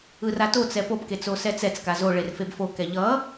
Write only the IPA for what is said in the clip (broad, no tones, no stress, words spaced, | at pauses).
ɯratot͡sɛ popke t͡sosɛt͡sɛt͡ska zo ɭerfebfokɛ ʎʌ